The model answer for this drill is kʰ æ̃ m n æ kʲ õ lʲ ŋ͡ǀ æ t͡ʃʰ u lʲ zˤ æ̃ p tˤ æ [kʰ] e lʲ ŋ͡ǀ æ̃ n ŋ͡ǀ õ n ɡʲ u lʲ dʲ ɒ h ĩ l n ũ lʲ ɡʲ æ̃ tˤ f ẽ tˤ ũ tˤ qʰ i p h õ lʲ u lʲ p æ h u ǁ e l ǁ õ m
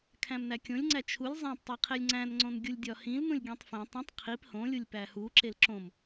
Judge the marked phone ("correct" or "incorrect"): incorrect